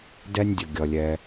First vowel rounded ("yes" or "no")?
no